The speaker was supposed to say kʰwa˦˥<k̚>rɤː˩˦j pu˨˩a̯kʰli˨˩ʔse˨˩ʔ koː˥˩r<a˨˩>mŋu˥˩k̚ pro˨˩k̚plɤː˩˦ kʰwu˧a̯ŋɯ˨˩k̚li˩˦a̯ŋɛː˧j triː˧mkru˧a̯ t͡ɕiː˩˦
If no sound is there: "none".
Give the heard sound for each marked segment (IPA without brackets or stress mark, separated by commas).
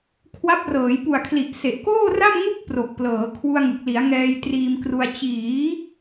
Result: p̚, a˥˩